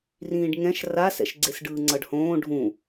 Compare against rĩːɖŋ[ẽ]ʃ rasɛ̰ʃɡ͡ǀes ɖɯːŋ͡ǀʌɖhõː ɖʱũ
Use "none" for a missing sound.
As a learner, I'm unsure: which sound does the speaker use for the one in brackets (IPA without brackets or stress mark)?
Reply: ɛ̃